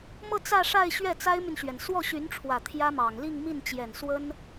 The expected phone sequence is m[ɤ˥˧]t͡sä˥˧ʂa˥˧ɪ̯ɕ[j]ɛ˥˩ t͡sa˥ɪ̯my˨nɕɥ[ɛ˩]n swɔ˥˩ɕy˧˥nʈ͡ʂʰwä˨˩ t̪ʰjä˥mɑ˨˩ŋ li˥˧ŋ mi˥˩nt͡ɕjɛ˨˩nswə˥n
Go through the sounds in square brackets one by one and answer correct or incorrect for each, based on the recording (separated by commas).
correct, incorrect, correct